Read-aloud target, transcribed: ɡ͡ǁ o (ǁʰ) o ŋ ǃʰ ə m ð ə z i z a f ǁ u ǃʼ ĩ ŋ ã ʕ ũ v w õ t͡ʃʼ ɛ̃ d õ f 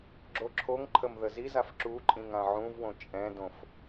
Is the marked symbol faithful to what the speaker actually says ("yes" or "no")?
yes